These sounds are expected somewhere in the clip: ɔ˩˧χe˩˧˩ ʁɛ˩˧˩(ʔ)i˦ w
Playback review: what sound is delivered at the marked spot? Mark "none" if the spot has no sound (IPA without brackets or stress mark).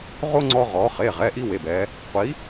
ʔ